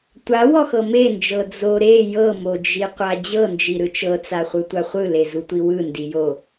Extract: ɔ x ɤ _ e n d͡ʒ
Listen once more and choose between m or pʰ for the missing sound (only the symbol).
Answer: m